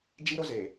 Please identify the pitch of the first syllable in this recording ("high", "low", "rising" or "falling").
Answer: high